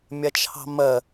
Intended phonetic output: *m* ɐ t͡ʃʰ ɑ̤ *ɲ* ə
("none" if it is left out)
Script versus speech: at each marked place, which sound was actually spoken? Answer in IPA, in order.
mʲ, m

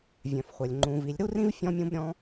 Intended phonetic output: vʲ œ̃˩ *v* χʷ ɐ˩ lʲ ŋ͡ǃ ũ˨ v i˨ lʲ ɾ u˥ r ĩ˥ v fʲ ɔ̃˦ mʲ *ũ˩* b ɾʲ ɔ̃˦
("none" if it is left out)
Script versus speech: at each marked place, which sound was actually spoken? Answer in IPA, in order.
f, ũ˦

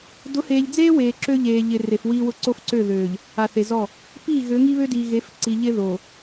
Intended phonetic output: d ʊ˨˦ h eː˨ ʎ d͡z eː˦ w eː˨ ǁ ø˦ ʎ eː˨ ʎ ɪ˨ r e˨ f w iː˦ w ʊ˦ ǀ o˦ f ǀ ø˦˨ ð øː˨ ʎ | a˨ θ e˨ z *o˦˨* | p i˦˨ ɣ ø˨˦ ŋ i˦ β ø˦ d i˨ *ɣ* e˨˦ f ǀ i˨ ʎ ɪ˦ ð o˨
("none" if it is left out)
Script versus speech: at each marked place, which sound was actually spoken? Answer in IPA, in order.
ɔ˦˨, ɣ

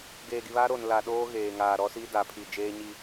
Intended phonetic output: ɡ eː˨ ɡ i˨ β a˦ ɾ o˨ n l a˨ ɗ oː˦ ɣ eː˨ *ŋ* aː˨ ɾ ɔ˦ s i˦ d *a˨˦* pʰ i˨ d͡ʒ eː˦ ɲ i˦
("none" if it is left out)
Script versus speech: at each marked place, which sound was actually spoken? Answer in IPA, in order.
ŋ, a˨˦

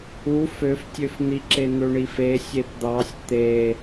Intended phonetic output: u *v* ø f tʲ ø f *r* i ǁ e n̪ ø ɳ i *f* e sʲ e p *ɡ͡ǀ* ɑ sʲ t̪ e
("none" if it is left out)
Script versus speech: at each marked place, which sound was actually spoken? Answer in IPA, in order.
f, n̪, f, d̪

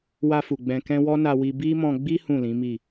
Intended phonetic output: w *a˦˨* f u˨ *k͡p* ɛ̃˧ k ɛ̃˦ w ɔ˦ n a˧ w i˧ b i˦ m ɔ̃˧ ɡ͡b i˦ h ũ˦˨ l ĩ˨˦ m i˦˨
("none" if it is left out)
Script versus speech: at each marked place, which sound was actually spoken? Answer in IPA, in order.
a˧, ɡ͡b

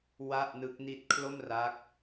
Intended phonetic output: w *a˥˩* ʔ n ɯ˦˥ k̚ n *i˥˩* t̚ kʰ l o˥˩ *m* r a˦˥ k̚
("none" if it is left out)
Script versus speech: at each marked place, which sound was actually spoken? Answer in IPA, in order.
a˥˩, i˥˩, m

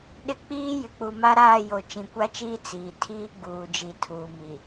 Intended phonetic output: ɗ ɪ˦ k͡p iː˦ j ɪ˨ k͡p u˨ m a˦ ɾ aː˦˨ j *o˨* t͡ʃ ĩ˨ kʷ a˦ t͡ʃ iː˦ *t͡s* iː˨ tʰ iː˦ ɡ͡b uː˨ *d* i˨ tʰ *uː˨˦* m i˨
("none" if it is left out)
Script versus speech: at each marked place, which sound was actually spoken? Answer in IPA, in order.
o˨, t͡s, d͡ʒ, uː˨

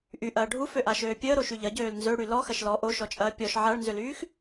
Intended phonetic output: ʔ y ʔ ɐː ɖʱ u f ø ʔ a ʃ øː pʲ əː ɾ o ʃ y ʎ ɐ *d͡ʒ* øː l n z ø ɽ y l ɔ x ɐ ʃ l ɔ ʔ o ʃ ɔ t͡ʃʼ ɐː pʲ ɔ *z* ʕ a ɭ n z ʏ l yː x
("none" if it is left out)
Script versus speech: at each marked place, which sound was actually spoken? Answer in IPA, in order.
ɟ, ʃ

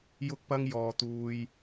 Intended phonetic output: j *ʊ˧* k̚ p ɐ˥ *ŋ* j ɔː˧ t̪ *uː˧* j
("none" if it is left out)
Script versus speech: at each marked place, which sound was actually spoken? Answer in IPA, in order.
ʊ˥, ŋ, uː˥

